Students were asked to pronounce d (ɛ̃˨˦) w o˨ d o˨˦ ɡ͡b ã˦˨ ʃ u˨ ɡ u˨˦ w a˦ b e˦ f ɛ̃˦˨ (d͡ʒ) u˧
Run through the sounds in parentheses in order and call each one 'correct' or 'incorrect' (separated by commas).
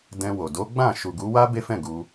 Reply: incorrect, incorrect